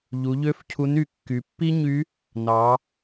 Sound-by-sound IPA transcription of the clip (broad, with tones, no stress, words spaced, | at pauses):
ʎu˩˧ʎø˧˥f cʰu˧˥ny˩˧ kːy˩˧ pːi˥ɲy˧˥ | nɑ˩˧